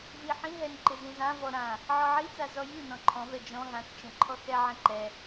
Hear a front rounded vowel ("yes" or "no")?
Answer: no